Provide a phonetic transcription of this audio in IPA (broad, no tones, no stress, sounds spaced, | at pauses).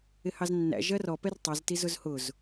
ɪ h ɑ z nː æ̰ ʒ ɜ r ɔ p ɛ r tˤ i z t i z ʊ z h ʊ z